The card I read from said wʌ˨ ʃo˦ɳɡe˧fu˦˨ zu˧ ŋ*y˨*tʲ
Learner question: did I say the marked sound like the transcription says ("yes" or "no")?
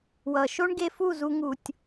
no